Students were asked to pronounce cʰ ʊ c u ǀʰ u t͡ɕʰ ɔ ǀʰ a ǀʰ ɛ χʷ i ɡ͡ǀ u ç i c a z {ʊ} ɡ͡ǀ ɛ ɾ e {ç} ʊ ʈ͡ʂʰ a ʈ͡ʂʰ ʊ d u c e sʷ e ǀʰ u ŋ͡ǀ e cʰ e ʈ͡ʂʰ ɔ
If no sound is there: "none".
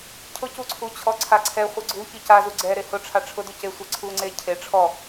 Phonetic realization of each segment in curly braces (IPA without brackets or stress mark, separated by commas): u, h